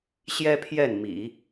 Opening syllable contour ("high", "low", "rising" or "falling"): high